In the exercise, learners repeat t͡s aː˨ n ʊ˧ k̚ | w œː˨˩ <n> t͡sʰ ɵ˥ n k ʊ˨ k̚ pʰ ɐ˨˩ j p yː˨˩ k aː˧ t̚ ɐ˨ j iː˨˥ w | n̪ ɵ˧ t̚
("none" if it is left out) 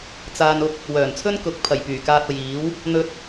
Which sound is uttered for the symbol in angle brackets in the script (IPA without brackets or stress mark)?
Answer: n